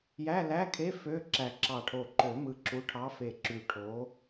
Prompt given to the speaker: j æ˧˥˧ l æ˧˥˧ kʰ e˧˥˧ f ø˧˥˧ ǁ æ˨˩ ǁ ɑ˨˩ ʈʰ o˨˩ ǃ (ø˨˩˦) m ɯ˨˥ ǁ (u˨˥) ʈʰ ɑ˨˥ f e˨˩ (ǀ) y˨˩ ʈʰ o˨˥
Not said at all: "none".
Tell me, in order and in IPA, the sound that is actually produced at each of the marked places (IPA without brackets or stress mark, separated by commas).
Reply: ø˨˩˦, u˨˥, ǁ